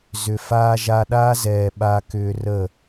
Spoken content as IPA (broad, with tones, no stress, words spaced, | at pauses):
zʏ˨ faː˧ʒa˧ɗaː˦zɛː˨ ɓa˧kʏː˧rə˦˨